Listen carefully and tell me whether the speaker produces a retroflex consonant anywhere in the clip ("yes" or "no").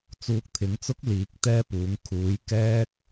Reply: no